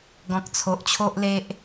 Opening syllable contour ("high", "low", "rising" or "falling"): low